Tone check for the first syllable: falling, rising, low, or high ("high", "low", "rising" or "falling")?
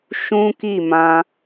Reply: high